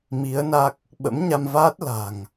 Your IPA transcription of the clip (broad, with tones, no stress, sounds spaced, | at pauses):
m i˨˦ ə̯ n a˦˥ k̚ | ɓ ə̰˧˥ m ɲ a˧ m v aː˦˥ t̚ l a̤˨˩ ŋ